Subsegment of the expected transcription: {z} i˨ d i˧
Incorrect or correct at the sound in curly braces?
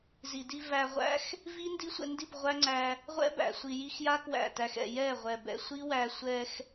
correct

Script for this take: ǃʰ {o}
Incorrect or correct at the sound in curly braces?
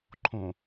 incorrect: õ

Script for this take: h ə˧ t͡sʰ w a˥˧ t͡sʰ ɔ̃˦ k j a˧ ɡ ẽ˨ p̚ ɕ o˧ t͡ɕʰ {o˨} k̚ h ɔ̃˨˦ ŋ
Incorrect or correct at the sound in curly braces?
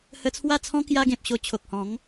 correct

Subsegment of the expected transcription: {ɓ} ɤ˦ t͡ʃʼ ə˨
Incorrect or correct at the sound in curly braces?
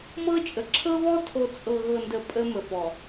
incorrect: m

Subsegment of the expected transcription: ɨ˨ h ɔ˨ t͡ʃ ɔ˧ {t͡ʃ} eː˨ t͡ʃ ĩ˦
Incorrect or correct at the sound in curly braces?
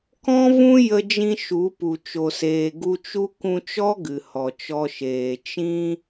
incorrect: ʃ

